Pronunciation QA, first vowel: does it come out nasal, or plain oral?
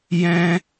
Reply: nasal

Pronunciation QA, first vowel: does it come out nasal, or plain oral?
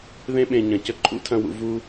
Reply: nasal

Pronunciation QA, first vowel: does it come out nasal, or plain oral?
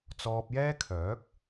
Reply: oral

